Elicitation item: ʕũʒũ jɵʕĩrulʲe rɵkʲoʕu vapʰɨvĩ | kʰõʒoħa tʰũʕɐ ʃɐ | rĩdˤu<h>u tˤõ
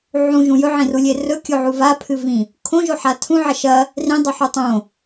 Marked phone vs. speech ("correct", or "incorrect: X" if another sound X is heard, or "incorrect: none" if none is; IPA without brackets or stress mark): incorrect: ħ